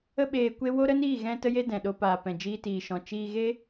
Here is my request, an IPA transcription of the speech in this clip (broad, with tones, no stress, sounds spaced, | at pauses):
ə˦ ɓ eː˧ kʷ e˦ w o˦ ɾ ə˦ n iː˦˨ ɣ ɛ̃˦ t ə˦ j e˦ d ɛ̃˨ ɗ o˧ p aː˨ p ɛ̃˨ d͡ʒ iː˧ t iː˨ ʃ ɔ̃˨ t͡ʃ iː˧ ɣ e˦